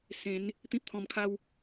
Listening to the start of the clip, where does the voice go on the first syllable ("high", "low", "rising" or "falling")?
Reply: rising